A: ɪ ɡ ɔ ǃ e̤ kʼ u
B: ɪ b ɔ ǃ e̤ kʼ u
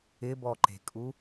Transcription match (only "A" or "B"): B